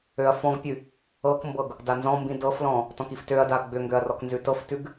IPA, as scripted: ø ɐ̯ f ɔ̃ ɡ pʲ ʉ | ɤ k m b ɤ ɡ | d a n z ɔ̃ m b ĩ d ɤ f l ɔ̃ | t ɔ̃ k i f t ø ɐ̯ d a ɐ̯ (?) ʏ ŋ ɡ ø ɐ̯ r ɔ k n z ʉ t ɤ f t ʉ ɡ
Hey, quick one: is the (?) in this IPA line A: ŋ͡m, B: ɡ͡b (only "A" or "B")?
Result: B